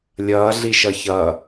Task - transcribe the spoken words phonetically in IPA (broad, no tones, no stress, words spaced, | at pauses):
lʲʌːɮiʃʌ çʌː